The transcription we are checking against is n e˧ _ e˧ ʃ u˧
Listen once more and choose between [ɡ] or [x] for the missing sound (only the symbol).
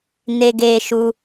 ɡ